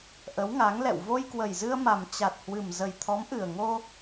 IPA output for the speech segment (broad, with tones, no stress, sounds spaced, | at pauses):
ʔ ə˨˦ w ŋ a˨˦ ŋ l ɛ̰˧˨ w v o˧ j k w ə˨˩ j z ɨ˧ ə̯ m a˨˩ m t͡ɕ a˨˩ t̚ h w ɨ˨˩ m z ə˨˩ j t̪ʰ ɔ˨˦ m ʔ ɨ˨˩ ə̯ ŋ o˧